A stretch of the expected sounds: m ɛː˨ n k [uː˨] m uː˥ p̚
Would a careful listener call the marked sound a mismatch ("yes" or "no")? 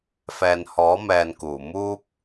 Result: yes